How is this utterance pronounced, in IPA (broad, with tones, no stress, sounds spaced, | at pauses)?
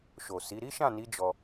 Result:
ʃ o˨ s i˨˦ ɾ i˦ ʃ ã˦˨ n i˨˦ d͡ʒ ɔ˧